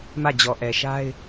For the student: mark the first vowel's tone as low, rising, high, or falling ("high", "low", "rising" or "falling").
falling